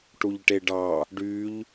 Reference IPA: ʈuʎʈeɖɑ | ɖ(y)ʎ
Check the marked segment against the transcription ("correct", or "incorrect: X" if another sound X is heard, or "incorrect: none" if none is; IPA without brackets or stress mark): correct